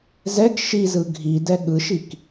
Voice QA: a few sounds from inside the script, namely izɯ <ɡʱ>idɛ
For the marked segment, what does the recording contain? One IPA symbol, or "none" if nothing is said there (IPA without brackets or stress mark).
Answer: ɡʱ